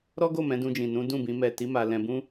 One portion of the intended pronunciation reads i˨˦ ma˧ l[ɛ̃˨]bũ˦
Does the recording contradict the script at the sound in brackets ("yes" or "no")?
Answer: yes